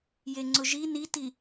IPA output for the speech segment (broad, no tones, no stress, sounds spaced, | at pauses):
j e ŋ͡ǀ ʊ ʒ i n i t i